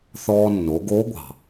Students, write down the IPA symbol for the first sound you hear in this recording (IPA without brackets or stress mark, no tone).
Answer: θ